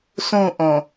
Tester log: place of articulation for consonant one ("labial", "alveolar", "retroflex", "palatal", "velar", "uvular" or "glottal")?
alveolar